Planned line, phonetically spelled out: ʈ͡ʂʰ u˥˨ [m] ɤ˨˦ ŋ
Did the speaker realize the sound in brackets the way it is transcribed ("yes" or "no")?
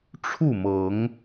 yes